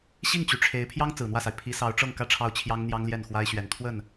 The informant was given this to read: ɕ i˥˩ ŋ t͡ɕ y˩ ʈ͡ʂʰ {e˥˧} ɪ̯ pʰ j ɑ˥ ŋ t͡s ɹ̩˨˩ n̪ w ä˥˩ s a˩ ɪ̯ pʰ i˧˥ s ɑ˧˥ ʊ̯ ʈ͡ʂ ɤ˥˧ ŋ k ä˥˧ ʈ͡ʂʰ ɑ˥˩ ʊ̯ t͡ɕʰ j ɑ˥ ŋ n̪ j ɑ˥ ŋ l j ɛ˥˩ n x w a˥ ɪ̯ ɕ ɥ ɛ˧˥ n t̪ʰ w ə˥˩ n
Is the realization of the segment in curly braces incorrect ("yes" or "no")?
yes